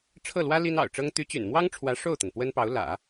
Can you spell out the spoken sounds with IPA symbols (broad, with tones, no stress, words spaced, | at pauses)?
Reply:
ʈ͡ʂʰɤ˥˩lwä˥ li˥nɑ̰˨˩ʊ̯ʈ͡ʂɤ˥ŋ t̪y˧˥t͡ɕy̰˨˩nmwɑ˥ŋʈ͡ʂʰwä˧˥ ʂo˥˩ʊ̯t̪ə˩n pwə˥npɑ˧˥ʊ̯ lä̰˨˩˦